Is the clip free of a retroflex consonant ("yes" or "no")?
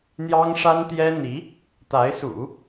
no